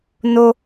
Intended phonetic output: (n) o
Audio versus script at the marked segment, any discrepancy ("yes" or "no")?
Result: no